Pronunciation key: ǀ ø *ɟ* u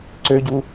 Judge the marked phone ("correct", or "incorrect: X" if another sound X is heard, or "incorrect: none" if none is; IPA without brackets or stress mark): correct